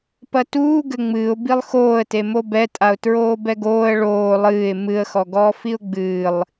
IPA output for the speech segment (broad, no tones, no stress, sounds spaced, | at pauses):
p ɐ t uː ɡ ɘ ŋ͡m ɨː ʊ̯ b i lˠ x oː ə̯ t e m o b ɛ tʼ a ʊ̯ t ɹ oː b ɛ ɡ oː ə̯ ɭ oː lˠ ɨː ɪ̯ m ɨ ə̯ x ɔ ɡ ɔː f i ʊ̯ ɡ͡b ɨː lˠ